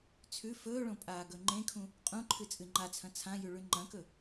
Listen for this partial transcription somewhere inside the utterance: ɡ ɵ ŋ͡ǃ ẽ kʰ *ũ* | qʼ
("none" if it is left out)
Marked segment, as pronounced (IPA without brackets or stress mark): ũ